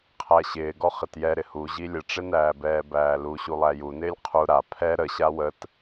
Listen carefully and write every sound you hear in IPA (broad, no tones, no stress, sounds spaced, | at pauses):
qʰ æ ɕ ɪː ɡ ɔ χ ɪ t j ɛ ɾ ɪ h u ʑ i lʲ ə ʈ͡ʂ ɪ n æː b ɛː b æː l u ɕ u lˠ æ j u n ɪː lʲ qʰ u ɾ a pʰ ɛ ɾ ə ɕ a w ə t